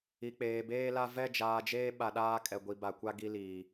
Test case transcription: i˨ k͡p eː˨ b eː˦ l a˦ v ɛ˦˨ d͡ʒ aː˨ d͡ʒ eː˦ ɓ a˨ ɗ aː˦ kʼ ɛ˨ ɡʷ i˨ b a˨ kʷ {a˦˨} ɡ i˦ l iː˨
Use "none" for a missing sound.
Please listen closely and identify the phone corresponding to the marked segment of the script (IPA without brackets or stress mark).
a˦